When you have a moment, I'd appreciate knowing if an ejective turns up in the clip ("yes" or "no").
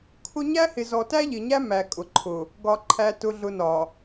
yes